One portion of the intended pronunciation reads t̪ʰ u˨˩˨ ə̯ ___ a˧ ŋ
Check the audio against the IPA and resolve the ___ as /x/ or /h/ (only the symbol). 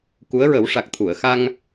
x